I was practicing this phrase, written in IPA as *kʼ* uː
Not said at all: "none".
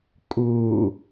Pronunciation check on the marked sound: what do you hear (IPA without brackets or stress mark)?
kʼ